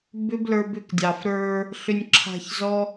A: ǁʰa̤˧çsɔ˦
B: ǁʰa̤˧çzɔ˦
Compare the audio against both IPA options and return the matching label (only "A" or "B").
B